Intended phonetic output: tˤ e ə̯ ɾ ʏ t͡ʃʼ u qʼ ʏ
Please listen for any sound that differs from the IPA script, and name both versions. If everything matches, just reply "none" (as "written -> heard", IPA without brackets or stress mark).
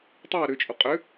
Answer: none